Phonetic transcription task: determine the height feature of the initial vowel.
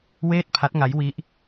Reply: mid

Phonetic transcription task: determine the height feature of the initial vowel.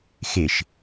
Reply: high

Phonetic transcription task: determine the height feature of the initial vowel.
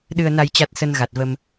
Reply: high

